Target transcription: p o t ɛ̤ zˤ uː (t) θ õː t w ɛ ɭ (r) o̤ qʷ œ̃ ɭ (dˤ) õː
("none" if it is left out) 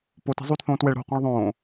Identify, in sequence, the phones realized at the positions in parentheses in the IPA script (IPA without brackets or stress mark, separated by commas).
t, ɾ, ðˤ